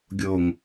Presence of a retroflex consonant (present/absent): absent